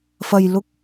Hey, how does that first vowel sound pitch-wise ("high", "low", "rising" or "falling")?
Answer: low